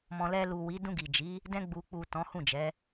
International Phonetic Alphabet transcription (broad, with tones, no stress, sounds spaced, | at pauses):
m ɔ̃˨ l ɛ˧ l u˨ w i˨˦ d ũ˧ ɡ i˨ d͡ʒ i˨˦ | d ɛ̃˧ ɡ͡b u˨ k͡p u˨ t ɔ̃˨˦ h ũ˦˨ d͡ʒ ɛ˨˦